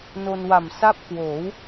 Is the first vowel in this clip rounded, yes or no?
yes